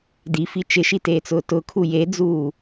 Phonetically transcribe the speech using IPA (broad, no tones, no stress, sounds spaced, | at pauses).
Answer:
d i f i t͡ʃ ɪ ʃ i t eː t͡s ʊː t ʊ kʰ u j e d͡z uː